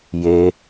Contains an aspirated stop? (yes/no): no